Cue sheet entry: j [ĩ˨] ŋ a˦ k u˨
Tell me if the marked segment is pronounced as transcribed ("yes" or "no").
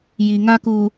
no